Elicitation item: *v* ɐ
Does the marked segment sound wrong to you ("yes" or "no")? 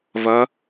no